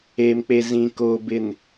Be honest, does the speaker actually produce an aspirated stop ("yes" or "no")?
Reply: no